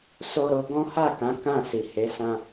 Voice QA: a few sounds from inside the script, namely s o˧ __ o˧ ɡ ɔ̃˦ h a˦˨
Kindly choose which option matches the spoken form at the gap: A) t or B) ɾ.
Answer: B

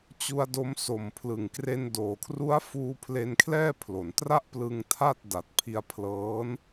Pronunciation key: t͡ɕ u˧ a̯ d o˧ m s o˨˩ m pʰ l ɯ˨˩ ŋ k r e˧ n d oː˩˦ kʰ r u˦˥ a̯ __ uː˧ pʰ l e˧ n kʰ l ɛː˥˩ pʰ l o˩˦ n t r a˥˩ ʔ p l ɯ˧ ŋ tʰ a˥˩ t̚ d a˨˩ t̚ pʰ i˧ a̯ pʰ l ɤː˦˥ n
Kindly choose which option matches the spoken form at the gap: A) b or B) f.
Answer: B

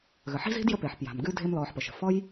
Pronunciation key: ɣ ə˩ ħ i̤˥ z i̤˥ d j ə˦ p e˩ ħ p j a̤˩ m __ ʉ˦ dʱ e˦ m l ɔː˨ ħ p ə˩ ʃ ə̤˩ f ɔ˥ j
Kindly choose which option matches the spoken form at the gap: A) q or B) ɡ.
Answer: B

